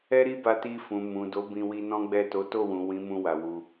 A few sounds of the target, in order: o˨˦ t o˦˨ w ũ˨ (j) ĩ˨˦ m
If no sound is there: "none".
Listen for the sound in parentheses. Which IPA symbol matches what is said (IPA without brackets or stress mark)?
w